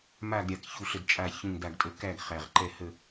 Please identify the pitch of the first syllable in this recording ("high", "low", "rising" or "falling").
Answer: falling